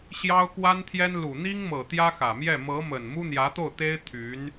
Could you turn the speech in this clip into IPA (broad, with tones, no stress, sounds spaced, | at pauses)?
ɕ j ɑ˥ ʊ̯ k w a˥ n t̪ʰ j ɛ˥ n l u˨˩ n̪ i˥ ŋ m ɤ˨˩ t̪ j ä˥ x ä˨˩ m j ɛ˥˩ m ɤ˧˥ m ə˨˩ n m u˥ n̪ j ä˧˥ t̪ o˥˩ ʊ̯ t̪ e˥ ɪ̯ t̪ʰ y˧˥ n